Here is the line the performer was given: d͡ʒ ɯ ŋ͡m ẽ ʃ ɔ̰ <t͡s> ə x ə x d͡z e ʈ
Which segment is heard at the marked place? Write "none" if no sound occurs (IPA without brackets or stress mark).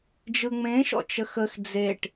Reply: t͡ʃ